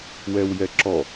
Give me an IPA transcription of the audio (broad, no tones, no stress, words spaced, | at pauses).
wɛwjɛǁɔ